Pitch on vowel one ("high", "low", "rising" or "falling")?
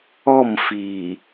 falling